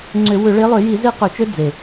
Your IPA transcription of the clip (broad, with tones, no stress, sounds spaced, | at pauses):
ŋ͡ǀ ʏ˧˩˧ w ʏ˧˩˧ ɭ e˨˦ lˠ ø˧˩˧ j i˧˩˧ z e˦˥ q ø˧˩˧ t͡ʃ ø˦˥ d͡z e˨˩